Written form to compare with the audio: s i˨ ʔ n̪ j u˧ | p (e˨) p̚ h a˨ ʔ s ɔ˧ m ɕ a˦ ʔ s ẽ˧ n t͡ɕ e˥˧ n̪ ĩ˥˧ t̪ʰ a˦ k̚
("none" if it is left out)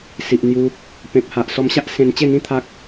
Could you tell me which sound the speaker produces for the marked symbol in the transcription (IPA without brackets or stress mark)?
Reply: ẽ˨